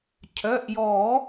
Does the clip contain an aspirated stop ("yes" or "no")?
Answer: yes